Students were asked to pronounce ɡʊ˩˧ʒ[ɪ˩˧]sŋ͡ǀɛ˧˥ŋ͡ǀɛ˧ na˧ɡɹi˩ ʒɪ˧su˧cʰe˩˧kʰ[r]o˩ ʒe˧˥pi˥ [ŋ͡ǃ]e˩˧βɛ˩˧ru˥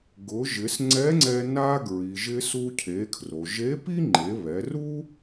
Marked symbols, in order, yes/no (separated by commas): yes, yes, yes